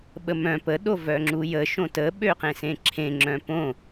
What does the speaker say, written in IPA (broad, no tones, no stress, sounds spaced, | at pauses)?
ɓ ə m œ̃ p ə ɗ o v œ ŋ͡ǁ u j ə ʃ õ t ə ɓ ø q ẽ s ẽ ǁʰ ẽ ŋ͡ǁ œ̃ p õ